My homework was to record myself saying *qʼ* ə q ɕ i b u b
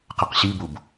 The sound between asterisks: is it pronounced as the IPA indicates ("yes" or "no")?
no